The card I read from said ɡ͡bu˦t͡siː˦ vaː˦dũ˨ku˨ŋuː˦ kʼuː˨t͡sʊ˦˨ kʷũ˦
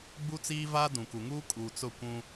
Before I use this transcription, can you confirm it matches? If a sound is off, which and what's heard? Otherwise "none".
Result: none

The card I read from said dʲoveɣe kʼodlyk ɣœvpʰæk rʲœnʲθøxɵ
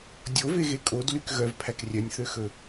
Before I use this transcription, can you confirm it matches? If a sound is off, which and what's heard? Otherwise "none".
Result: none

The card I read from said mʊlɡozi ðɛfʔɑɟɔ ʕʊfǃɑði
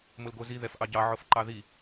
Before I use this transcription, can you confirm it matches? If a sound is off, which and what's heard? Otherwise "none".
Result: ɔ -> ɑ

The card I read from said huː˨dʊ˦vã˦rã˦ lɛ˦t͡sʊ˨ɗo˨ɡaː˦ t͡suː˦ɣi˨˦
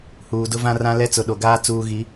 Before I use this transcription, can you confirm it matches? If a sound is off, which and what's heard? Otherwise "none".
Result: none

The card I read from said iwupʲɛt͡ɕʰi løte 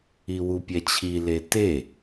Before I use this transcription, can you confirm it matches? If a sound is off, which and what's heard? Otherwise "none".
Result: ø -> e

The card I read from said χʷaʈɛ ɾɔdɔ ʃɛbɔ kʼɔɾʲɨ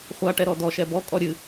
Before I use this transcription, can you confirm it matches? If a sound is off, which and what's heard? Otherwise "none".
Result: none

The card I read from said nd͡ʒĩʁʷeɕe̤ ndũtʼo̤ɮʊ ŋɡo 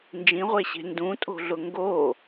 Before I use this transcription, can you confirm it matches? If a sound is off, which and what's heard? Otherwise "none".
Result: none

